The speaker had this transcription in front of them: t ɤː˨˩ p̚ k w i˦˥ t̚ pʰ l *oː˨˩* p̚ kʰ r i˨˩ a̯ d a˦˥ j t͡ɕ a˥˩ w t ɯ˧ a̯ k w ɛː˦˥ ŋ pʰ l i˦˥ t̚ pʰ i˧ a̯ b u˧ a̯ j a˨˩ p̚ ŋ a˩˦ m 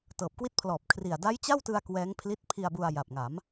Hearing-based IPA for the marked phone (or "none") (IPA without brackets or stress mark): ɔː˨˩